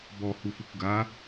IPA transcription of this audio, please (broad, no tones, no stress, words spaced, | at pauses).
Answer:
bɔhufukʷ ɡa